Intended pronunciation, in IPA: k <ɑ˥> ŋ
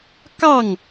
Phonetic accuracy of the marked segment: incorrect: ɑ˥˩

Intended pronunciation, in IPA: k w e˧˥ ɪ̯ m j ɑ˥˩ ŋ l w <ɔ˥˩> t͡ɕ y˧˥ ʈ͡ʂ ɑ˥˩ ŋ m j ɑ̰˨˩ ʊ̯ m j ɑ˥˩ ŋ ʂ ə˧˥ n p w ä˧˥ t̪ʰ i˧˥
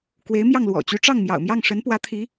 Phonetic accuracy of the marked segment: incorrect: ɔ̰˨˩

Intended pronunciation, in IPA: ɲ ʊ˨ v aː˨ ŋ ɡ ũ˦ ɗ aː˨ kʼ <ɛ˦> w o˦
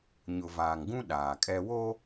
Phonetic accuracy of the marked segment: correct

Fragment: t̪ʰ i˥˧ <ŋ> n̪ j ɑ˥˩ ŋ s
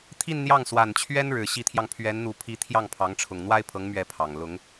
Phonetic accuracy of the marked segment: incorrect: n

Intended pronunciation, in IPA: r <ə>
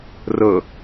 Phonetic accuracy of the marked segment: correct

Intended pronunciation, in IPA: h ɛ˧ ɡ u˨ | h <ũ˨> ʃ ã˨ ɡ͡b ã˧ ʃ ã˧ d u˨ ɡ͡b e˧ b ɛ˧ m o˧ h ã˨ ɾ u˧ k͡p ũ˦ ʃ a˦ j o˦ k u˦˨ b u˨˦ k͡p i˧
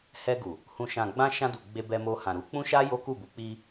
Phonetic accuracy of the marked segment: correct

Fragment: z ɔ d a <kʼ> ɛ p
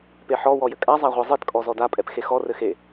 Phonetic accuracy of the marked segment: incorrect: pʼ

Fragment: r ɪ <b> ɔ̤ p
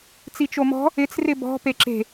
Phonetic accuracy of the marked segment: correct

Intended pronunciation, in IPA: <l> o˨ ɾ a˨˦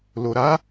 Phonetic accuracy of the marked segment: correct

